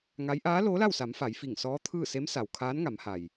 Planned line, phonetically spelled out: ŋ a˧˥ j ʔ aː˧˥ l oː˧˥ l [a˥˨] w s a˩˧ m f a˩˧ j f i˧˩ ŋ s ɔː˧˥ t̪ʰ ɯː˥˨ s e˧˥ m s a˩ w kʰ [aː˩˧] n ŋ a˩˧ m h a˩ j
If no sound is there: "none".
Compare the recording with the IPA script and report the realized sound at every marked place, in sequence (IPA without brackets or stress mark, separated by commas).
a˥˨, aː˧˥